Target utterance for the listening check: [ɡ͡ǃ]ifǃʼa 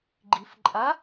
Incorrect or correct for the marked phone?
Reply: correct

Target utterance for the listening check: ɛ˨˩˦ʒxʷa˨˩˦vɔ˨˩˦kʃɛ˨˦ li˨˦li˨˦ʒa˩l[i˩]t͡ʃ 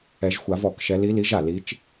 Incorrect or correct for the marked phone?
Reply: incorrect: i˨˦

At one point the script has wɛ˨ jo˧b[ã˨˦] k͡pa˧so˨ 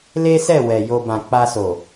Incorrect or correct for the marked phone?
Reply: incorrect: ã˨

